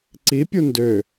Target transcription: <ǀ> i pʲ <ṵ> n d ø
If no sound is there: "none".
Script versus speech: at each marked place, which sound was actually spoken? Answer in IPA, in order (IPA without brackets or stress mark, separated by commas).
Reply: ǀ, u